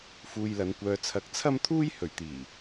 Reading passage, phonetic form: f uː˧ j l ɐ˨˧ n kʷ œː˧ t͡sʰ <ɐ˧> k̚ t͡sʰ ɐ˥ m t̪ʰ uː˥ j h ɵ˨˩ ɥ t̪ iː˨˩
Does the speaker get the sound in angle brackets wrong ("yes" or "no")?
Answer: no